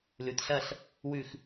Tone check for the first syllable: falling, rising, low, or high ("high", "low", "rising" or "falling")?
low